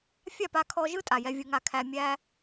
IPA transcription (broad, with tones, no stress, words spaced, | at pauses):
fʲa˦˨pa˧kʰɔ˧ ʒɯ˦ tʼa˨jɛ˧vʲɯ˧ŋa˧ kʰæ˧mʲæ˦